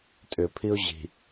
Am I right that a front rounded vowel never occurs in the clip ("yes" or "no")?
no